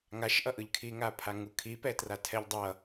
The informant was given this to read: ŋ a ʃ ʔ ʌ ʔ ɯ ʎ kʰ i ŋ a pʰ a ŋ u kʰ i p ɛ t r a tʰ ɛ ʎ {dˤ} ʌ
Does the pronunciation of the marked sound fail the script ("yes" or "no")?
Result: no